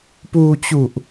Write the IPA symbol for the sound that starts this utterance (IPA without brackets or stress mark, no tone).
p